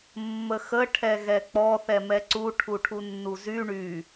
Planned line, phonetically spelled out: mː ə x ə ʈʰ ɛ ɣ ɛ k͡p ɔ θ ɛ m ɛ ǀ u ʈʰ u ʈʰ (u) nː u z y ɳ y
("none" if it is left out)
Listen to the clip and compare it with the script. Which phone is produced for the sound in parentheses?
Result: u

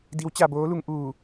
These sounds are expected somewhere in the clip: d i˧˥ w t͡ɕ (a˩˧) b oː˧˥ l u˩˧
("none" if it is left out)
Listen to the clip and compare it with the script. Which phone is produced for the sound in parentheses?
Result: a˧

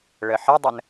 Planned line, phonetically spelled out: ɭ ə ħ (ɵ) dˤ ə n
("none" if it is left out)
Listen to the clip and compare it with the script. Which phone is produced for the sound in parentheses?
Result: ə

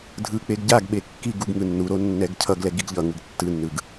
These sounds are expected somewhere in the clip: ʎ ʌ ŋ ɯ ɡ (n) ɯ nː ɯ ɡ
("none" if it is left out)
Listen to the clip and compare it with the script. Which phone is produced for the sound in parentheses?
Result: tː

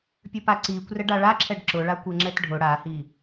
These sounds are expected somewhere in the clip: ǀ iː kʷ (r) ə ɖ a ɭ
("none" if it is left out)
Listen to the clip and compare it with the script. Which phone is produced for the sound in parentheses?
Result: r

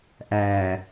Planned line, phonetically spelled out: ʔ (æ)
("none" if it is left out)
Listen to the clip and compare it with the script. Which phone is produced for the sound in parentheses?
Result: æ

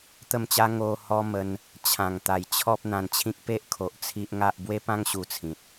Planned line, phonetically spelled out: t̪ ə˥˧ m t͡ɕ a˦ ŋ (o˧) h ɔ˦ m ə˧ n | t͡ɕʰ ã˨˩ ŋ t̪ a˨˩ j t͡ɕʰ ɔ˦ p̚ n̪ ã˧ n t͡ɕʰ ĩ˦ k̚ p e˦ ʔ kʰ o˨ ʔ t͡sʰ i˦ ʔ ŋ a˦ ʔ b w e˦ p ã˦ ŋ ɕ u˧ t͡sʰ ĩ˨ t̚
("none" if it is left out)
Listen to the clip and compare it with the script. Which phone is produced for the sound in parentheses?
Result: o˧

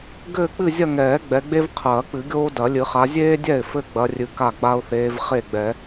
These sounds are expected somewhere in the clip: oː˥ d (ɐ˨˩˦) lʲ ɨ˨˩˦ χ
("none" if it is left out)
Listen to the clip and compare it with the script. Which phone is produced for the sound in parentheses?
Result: ɐ˨˩˦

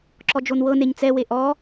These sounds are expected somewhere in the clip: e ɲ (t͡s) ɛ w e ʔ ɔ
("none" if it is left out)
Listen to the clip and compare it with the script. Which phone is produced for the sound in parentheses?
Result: t͡s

